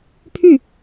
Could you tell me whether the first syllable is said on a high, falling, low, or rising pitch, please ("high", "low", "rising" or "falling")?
falling